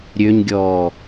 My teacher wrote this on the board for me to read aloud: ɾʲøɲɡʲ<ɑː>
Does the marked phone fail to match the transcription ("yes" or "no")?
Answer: yes